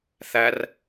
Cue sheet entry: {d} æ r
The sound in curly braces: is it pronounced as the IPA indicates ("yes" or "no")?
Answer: no